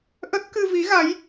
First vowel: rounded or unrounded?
unrounded